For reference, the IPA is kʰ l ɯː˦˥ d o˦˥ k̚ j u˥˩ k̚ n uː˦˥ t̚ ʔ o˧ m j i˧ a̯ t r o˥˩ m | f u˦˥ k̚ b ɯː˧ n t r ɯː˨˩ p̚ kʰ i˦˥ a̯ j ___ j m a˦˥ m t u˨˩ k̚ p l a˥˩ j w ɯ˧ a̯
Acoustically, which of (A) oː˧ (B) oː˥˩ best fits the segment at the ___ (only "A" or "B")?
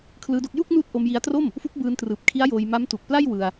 A